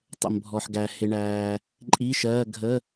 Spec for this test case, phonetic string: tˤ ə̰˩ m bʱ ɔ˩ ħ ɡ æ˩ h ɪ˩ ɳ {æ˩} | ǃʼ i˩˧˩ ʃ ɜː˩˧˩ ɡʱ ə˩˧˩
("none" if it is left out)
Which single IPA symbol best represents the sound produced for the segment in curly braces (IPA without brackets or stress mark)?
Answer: æː˩